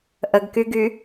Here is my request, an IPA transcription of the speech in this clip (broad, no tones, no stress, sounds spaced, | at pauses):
ʔ ə ɡ k y ɡ y